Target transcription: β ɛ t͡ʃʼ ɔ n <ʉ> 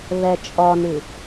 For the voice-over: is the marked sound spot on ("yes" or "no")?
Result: yes